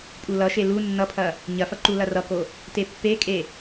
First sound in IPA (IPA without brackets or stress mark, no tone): pʼ